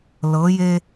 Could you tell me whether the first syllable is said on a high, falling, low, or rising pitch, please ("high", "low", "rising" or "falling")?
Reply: rising